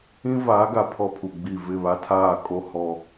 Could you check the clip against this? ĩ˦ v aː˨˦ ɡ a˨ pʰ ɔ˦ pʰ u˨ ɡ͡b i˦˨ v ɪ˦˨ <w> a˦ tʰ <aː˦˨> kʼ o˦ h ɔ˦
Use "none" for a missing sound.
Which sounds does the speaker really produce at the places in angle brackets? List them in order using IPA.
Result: β, aː˦˨

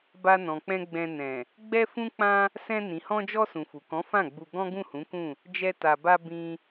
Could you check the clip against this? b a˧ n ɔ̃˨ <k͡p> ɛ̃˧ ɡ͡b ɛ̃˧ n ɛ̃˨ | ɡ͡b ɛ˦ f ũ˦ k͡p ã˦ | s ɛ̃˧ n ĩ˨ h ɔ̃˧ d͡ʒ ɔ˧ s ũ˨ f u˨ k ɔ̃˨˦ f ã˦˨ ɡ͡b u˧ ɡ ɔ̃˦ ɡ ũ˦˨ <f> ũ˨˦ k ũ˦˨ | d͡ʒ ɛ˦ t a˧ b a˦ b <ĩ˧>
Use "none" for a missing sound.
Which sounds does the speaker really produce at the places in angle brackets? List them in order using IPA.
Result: k͡p, h, ĩ˧

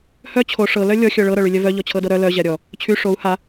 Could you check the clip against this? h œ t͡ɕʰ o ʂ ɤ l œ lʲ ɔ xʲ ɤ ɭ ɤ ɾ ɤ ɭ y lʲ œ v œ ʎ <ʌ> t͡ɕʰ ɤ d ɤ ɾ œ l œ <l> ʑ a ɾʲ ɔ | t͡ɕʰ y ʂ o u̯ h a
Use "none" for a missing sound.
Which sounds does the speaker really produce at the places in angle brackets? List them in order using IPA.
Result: ɔ, none

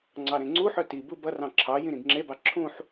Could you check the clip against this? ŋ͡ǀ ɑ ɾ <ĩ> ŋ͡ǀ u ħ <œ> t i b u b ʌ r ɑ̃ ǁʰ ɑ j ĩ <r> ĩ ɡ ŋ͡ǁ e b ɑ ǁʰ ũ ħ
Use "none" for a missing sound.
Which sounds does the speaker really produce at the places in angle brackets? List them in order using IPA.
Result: ẽ, œ, ɾ

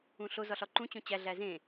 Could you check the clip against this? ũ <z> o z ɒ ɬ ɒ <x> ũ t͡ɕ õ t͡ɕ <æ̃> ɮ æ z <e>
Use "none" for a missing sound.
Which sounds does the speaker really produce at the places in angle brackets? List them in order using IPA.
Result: ɬ, ǃ, æ, ẽ

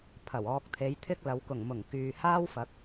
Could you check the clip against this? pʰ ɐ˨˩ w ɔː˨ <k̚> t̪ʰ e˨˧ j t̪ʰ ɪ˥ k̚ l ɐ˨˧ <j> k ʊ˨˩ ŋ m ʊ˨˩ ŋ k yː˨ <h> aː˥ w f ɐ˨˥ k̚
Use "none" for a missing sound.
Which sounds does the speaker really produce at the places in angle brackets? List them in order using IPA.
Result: k̚, w, h

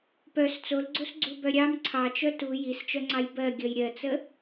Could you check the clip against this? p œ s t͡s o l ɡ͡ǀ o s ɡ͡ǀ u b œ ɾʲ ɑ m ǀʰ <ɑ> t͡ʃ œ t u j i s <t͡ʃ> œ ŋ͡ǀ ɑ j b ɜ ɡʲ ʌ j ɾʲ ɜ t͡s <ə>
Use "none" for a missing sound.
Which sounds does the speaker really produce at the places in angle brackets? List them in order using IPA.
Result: ɑ, t͡ʃ, ə

